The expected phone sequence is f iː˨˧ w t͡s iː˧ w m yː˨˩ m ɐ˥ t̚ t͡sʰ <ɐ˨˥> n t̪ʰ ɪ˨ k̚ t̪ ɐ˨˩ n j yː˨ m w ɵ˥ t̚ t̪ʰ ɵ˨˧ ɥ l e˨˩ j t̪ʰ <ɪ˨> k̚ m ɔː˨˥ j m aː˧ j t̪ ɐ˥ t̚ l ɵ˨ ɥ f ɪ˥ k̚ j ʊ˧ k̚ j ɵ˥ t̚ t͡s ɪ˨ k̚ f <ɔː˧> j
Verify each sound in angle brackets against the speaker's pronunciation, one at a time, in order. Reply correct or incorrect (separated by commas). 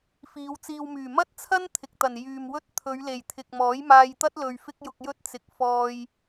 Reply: incorrect, correct, correct